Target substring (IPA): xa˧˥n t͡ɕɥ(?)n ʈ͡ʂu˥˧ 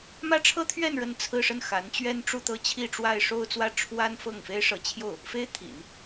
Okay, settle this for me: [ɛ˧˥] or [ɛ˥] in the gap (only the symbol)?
ɛ˥